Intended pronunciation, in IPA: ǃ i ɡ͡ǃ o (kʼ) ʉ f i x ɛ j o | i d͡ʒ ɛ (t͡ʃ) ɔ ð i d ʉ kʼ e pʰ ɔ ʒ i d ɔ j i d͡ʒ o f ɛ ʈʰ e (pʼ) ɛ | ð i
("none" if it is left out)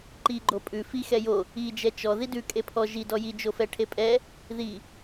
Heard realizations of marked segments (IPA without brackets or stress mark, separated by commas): pʼ, t͡ʃ, pʼ